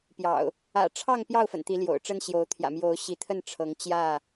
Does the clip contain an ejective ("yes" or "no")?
no